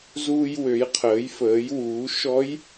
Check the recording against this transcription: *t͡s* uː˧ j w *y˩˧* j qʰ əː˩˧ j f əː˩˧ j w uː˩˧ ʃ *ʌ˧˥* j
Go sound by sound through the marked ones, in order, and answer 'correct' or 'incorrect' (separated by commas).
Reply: incorrect, incorrect, incorrect